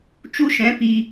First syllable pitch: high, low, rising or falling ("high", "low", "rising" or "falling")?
high